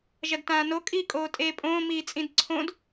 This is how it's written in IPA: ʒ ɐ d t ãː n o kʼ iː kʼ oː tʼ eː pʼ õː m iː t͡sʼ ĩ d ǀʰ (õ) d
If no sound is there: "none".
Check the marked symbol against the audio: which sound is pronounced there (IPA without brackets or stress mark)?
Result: õ